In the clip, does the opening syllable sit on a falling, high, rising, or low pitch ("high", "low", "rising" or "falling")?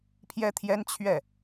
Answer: high